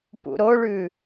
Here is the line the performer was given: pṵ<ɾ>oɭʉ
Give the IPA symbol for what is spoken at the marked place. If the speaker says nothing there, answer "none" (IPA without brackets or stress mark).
ɾ